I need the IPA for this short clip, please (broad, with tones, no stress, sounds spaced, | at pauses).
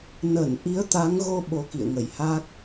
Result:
n ə˧˩ n ʔ i˨˦ ə̯ t̪ a˨˦ ŋ ɣ o˧ ɓ o˧ k ḭ˧˨ ə̯ ŋ ə˧˩ j h a˦˥ k̚